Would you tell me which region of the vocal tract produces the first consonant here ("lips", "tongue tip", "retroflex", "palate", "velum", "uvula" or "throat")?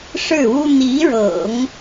retroflex